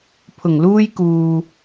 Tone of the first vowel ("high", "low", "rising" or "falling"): low